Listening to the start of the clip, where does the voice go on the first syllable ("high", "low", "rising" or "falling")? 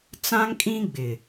high